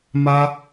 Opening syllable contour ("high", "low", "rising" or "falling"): high